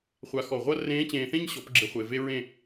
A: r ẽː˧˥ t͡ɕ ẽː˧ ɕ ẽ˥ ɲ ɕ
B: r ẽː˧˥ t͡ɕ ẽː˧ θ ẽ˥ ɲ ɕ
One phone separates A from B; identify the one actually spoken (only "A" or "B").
B